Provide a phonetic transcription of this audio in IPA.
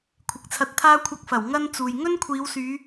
kʷʰ ɪ˨ k̚ t͡sʰ ɐ˧ t̚ t̪ʰ aː˥ kʷʰ ɐ˧ k̚ f ɐ˨˩ w ŋ ɐ˥ n t͡s uː˨ j ŋ ɵ˥ n kʷʰ iː˨˧ w s yː˨˧

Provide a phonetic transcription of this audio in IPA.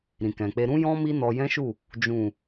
ɾ ĩ˨ k ɛ̃˨ k͡p e˧ ɾ ũ˦ j ɔ̃˦ m i˦ n ɔ˧ j ɛ̃˦ ʃ u˦˨ | d͡ʒ ũ˨

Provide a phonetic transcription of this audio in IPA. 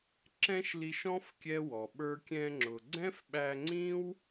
ǁ ɛ̃˦ ʃ l i˧ ʃ ɔ̃˦ f kʲ ɛ˦ w ɔ˨ ɓ ə˞˧ kʲ ɛ̃˧ ŋ͡ǁ ʊ˨ ɡ͡ǀ ɛ̃˦ f ɓ æ˧ ŋ͡ǀ ĩ˦ w

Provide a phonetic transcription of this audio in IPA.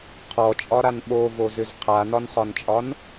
qʰ ɔ t͡ʃʼ ɒ ɾ a n ɓ o v o z ʏ z qʰ a n ɒ n χ ɒ n t͡ʃʼ ɒ n

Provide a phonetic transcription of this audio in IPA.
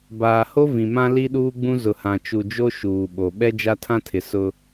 b aː˨ h o˦ v ĩ˨ m ã˦ l i˦ ɗ uː˦ ɡ͡b ũ˦ z ʊ˨ h ã˨ t͡ʃ u˨ d͡ʒ o˦ ʃ uː˨ ɓ o˨ ɓ ɛ˦ d͡ʒ a˦ tʰ ã˦ tʰ ɪ˨ s ʊ˦

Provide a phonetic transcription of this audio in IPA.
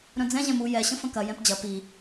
ɾ œ̃ d͡z ɛ̃ ʑ ɛ̃ m u j ɛ ɕ ə̃ f ə̃ k ɐ j ɛ̃ p d͡ʑ ɐ p i

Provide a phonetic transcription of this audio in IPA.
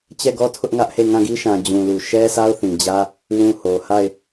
t͡ɕ ɛ˦˨ ɡ ɔ˦ tʰ ʊ˦ ʔ ŋ ä˦ ʔ h e˦˨ ŋ ã˦˨ ɡ i˦ ʃ ã˨ d͡ʑ ũ˨ l u˨ ʃ ɛ˦ s a˦ ʊ̯ θ ĩ˨ d͡ʑ ä˦ | w ũ˦˨ h o˨ h a˦˨ ɪ̯

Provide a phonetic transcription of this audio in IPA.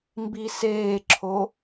m b i s eː ǁʰ o

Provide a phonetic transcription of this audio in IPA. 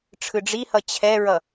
ʈ͡ʂʰ ɯ ɖ͡ʐ i h ʌ t͡ɕʰ ɛ ɹ ʌ

